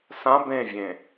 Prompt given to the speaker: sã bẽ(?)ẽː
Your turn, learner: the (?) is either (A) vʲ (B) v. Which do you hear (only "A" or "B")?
A